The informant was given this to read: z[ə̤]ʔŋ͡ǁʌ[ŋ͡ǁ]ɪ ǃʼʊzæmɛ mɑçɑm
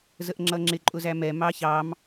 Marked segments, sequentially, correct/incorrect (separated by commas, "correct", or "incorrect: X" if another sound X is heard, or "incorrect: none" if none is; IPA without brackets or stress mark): incorrect: ə, correct